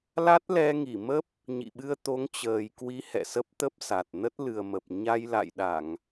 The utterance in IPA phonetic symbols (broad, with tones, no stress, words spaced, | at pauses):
la˦˥t̚lɛ˧ ŋi˧˩mə˦˥p̚ | ɲḭ˧˨ɓɨ˧ə̯ t̪o˨˦ŋt͡ɕəː˨˩jkwi˨˦ hɛ̰˧˨sə˦˥p̚t̪ə˦˥p̚sa˨˩t̚ nə˦˥t̚lɨ˨˩ə̯mə˨˩p̚ ɲa˧j la̰˧˨jɗa˧˩˨ŋ